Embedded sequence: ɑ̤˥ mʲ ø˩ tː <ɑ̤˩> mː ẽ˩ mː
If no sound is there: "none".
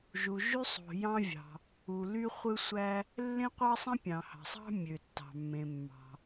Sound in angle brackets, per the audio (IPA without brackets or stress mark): ɑ̤˩